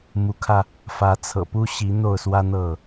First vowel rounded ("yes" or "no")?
yes